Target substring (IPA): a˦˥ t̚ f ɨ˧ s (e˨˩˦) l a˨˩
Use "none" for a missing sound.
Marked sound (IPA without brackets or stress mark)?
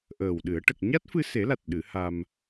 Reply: e˨˩˦